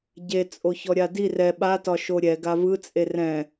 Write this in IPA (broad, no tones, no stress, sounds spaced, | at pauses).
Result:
ɟ e t͡sʼ o ç ɔ ɾʲ a d i r ɛ ɓ a t ɒ ʃ o ɾʲ ɛ ɡ a v ɯ t͡sʼ e r ɛ̃